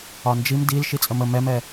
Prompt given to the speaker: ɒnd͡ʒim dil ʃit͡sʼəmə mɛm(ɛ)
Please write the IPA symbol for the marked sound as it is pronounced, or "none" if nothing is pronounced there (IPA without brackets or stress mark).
ɛ